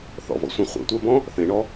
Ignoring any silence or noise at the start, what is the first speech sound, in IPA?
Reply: θ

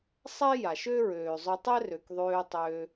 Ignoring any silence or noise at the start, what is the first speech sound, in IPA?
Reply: sˤ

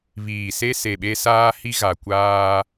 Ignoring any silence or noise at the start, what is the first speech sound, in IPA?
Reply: β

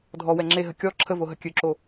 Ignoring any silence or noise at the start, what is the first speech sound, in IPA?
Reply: dʱ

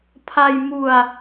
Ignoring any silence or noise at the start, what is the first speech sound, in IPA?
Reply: pʰ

